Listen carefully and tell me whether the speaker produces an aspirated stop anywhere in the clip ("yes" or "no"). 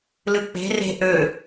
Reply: no